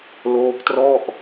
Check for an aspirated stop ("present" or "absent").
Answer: absent